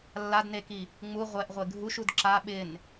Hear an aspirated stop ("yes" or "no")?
no